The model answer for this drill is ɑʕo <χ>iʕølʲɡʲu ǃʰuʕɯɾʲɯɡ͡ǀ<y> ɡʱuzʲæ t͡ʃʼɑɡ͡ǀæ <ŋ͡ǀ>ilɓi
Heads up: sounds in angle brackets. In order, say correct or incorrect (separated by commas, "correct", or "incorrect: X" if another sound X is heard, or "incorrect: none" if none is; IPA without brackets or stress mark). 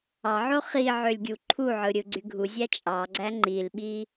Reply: correct, correct, incorrect: ŋ͡ǃ